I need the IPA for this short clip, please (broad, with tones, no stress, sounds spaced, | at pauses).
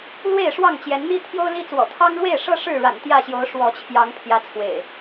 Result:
l w e˥˨ ɪ̯ ʂ w ɑ˥˨ ŋ t͡ɕ j ɛ˨˦ n n̪ i˦ t̪ʰ j o˦ ʊ̯ l i˦ t͡s w ɔ̰˨˩ t̪ʰ ɑ˦ ŋ ɻ w e˥˨ ɪ̯ ʂ ɤ˦ ʂ ɻ̩˥˨ ɻ a̰˨˩ n t̪ j ä˥˨ ɕ j o˨˦ ʊ̯ ʂ w ɔ˨˦ t͡ɕʰ j ɑ˨˦ ŋ pʰ j ä˨˦ t͡sʰ w ḛ˨˩ ɪ̯